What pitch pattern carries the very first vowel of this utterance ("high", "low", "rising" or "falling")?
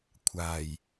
low